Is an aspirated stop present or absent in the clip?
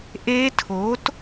present